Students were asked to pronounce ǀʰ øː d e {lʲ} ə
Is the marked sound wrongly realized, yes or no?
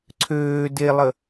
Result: yes